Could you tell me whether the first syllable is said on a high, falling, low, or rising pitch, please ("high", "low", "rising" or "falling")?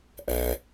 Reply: low